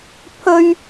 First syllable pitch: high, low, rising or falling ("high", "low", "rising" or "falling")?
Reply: high